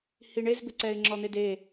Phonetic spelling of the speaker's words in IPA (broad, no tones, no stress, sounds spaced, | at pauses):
h i ɳ e z b ɪ ǀ ɛ ɪ̯ ŋ͡ǁ ɔ n̪ e d e